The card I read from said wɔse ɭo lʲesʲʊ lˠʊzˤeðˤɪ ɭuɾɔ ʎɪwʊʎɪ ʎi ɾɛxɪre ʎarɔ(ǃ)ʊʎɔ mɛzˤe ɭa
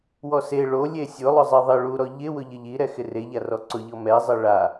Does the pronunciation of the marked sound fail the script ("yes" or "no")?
yes